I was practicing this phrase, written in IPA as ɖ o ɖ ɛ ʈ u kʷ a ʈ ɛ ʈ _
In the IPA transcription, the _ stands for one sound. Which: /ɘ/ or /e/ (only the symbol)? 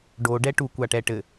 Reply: ɘ